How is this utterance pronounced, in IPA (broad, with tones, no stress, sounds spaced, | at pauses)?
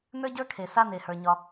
n ə˞˥ ɟ ə˞˥ kʰ e˩ s a˥ n e˩ h ə˞˩ ɲ ɒ˩